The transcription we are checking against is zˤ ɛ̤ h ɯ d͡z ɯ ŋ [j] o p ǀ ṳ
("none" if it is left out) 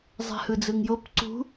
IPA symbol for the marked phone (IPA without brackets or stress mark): j